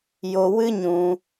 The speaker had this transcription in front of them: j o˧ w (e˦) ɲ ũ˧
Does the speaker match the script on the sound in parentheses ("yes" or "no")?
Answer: no